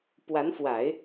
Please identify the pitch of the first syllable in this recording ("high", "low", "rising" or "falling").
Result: rising